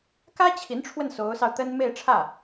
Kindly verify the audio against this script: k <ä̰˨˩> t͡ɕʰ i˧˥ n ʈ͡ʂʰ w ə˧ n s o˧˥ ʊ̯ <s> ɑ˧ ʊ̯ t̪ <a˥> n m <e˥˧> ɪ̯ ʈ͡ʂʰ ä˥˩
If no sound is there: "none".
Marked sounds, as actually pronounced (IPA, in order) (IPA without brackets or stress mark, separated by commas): ä˥, s, ə˥, e˥˧